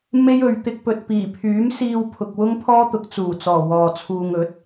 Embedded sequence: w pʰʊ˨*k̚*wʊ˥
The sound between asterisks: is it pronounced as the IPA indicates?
yes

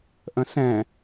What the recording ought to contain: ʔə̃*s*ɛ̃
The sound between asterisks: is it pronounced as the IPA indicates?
yes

